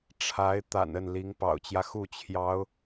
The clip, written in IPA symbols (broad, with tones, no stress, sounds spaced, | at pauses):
ʈ͡ʂʰ a˧˥ ɪ̯ t̪ a̰˨˩ n ə˥˩ n l i˧˥ ŋ p ɑ̰˨˩ ʊ̯ t͡ɕ j ä˦ x u˥˩ t͡ɕʰ j ɑ˧˥ ʊ̯